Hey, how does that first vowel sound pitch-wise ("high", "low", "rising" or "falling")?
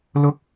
high